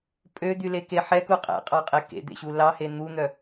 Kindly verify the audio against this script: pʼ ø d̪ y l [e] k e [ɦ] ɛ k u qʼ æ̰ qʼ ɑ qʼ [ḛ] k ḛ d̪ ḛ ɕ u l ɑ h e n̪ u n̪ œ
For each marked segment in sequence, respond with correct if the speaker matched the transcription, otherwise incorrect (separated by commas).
correct, incorrect, incorrect